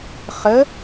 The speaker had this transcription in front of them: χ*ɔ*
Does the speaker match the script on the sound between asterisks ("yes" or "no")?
no